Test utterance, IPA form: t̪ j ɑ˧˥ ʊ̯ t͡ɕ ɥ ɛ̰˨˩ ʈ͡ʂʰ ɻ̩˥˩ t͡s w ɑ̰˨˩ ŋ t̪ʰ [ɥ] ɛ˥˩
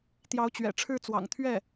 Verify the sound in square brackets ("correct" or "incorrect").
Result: correct